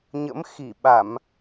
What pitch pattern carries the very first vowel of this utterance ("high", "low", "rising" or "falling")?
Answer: rising